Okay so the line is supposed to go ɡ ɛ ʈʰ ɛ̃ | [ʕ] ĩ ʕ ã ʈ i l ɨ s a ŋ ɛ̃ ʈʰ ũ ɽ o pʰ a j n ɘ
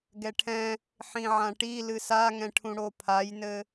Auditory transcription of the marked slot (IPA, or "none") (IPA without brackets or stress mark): ħ